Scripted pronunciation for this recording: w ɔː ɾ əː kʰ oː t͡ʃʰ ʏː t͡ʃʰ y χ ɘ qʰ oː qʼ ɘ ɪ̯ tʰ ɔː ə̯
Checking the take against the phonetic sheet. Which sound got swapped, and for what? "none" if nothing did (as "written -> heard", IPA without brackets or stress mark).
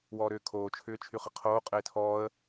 əː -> ʏː